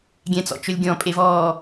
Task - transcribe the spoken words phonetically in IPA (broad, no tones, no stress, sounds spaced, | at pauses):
ɡʲ ɛ̃ t͡s ɔ̰ t͡ʃ ɵ lʲ ɡʲ ɔ̃ pʼ e v ɔː